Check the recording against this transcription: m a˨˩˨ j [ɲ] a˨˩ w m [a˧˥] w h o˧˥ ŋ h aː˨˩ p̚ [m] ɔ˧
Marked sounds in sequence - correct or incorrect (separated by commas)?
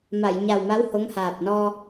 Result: correct, correct, incorrect